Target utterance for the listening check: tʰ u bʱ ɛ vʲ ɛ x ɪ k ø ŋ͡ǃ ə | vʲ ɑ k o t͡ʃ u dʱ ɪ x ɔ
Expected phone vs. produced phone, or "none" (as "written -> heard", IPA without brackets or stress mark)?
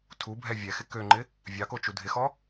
ə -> ɪ